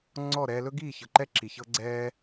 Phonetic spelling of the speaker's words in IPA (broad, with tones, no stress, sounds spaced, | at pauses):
ŋ͡ǀ ɔ˦˨ ɾ ɛː˧ l ɵ˦ ɡ iː˦˨ ç ɤ˨ ǃ ɛ˦ ǁʰ i˨ ç ɤ˦ ɡ͡ǀ ɛː˦